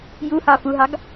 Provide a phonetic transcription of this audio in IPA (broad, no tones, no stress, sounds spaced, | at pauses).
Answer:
j u h ɑ f u ɦ ɑ ɡ